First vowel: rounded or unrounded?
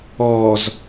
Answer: rounded